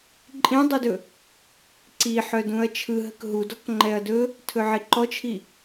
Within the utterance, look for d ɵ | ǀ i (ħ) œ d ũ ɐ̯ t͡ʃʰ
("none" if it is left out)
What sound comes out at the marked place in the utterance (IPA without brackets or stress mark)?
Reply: ħ